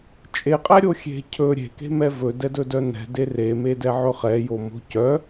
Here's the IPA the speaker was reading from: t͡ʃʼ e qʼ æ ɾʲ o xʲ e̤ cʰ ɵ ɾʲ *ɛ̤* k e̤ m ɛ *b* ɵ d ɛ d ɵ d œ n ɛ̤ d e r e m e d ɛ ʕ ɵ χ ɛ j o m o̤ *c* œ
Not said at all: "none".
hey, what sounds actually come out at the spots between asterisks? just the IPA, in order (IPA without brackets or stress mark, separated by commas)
e̤, v, c